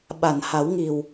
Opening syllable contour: low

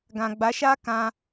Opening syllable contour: low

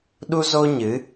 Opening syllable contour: high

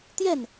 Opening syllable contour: falling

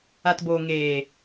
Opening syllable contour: low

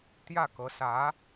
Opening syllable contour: falling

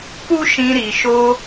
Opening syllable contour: high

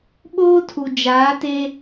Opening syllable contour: high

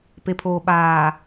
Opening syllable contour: low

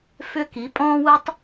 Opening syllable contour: high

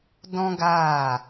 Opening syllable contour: high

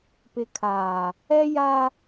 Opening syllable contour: low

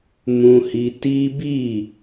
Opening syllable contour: high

